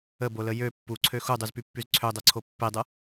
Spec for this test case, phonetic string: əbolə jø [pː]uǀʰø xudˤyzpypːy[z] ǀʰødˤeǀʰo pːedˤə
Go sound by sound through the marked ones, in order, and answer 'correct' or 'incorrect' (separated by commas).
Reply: correct, correct